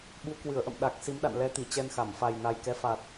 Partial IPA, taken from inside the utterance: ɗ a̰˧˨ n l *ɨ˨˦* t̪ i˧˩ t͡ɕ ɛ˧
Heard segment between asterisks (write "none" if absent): ɛ˨˦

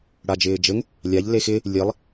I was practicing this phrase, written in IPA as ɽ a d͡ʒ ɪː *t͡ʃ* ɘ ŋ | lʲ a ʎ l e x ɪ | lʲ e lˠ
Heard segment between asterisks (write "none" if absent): d͡ʒ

